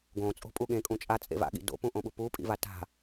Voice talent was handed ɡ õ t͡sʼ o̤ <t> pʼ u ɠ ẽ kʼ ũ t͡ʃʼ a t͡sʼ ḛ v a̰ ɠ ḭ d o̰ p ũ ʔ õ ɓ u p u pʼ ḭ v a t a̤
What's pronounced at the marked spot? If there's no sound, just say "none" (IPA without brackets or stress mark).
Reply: none